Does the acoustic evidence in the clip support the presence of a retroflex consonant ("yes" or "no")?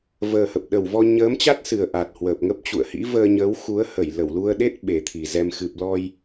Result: no